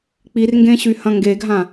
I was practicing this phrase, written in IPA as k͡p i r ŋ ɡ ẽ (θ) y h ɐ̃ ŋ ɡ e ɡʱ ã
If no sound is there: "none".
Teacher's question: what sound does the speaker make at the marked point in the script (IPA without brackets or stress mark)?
ɕ